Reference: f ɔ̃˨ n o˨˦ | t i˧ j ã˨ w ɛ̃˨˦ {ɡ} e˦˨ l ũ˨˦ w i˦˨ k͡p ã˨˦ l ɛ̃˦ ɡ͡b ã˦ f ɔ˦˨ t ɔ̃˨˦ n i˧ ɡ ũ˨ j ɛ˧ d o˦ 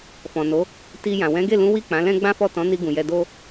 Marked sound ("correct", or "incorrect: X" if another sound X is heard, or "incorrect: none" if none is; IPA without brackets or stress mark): correct